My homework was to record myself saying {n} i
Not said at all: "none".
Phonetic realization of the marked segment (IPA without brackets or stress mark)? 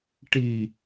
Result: ʈ